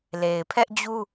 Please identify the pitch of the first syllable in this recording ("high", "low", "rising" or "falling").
low